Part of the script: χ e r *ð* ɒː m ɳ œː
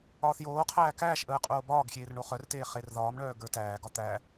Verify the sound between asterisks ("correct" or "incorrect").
correct